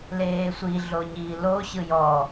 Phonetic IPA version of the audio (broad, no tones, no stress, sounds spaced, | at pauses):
l eː sʷ i ɮ o ɲ iː l o ɕ ɯ j ɔ